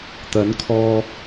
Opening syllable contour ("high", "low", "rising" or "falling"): rising